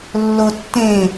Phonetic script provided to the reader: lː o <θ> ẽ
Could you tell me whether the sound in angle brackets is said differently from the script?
yes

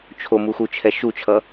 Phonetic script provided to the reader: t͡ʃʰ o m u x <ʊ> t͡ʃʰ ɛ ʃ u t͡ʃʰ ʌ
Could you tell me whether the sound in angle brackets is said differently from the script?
yes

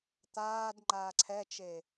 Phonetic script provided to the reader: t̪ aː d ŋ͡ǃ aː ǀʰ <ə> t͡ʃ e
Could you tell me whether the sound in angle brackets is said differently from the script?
yes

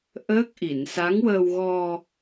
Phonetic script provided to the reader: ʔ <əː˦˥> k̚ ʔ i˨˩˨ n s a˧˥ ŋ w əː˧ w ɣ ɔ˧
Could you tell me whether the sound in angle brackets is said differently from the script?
no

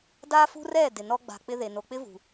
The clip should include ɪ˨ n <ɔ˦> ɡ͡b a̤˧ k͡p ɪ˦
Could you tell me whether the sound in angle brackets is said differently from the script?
no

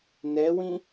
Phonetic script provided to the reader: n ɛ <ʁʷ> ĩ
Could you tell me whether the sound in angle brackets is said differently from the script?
yes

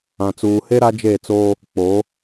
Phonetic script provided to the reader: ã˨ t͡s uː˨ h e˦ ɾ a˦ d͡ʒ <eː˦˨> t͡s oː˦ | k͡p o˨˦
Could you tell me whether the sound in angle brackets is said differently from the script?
no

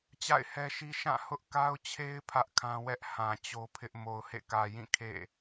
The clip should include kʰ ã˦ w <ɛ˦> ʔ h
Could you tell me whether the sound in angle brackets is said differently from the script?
no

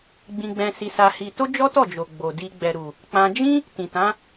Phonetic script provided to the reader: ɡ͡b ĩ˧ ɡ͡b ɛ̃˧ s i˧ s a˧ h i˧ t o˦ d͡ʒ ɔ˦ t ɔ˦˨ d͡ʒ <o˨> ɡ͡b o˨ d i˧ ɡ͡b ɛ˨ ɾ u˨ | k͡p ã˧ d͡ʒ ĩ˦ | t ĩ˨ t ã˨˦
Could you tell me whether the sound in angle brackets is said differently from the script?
no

